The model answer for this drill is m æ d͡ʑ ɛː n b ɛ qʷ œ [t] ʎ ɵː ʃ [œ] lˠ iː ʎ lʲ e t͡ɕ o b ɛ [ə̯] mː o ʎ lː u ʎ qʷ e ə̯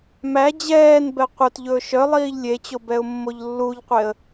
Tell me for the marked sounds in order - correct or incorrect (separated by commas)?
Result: correct, correct, incorrect